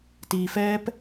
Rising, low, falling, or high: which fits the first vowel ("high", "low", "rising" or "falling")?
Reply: low